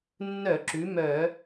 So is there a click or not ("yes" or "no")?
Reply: yes